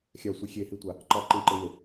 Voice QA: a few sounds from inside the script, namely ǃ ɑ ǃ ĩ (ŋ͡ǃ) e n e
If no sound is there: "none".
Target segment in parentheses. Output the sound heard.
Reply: ǃ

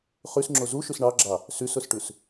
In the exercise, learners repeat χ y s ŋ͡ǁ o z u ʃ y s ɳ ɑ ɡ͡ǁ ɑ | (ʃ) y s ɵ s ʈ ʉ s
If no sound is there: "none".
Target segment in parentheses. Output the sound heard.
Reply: s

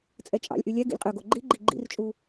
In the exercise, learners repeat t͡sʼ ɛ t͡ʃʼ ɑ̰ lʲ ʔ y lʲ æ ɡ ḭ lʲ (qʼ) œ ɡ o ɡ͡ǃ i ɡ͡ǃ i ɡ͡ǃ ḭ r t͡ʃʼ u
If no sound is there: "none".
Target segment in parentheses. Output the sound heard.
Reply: qʼ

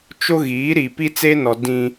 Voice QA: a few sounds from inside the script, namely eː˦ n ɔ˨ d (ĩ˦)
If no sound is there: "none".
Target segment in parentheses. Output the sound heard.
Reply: ĩ˦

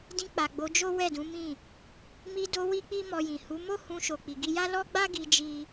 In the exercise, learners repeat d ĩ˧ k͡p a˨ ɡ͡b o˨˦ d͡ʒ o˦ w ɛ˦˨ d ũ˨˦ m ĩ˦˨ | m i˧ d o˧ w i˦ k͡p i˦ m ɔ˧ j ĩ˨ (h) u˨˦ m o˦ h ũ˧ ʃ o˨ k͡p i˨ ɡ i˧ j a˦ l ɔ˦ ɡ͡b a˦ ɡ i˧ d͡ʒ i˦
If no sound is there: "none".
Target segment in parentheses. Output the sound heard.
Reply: h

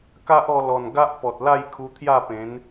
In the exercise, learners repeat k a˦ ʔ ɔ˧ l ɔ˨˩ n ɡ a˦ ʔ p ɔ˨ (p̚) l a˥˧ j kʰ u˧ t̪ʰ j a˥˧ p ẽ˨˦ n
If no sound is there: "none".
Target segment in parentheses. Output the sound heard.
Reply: t̚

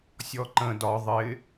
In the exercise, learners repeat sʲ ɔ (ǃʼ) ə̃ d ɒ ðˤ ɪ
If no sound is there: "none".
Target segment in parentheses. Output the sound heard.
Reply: ǃ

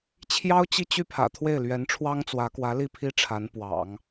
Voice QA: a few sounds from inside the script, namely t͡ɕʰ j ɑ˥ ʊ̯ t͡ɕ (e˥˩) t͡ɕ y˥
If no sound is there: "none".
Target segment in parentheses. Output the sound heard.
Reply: i˥˩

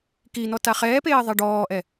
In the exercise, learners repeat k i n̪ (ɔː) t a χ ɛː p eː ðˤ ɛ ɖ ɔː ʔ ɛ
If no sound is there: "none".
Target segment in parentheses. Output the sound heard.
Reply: ɔ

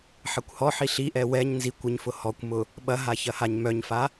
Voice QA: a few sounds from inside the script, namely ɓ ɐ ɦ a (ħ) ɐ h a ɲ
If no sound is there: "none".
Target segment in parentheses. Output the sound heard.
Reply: ç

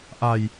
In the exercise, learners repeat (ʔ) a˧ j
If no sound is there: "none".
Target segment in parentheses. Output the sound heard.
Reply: ʔ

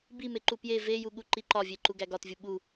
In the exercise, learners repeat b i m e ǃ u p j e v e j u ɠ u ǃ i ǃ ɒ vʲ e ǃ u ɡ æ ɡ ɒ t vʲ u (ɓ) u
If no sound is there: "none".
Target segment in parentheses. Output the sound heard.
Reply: ɓ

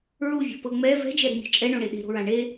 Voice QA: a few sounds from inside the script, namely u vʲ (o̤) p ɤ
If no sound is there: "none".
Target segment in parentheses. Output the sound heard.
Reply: o̤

